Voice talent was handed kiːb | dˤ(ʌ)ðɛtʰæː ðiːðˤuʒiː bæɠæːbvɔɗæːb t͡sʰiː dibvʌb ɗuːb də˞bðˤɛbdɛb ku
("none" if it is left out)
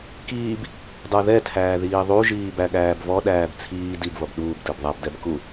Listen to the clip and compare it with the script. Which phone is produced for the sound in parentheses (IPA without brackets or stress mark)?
ə˞